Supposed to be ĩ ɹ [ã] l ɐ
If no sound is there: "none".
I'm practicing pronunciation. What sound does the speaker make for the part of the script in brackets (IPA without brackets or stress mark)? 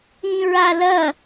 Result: a